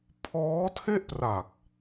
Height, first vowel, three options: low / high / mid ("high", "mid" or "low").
mid